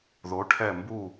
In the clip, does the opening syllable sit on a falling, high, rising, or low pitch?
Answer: rising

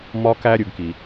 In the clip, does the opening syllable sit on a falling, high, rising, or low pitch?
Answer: high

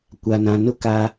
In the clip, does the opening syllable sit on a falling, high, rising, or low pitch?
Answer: low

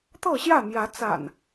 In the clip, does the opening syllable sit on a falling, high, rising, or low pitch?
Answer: falling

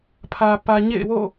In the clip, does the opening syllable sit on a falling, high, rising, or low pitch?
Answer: low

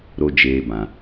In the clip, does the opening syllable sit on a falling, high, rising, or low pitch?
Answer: high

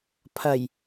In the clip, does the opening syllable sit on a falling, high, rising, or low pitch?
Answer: low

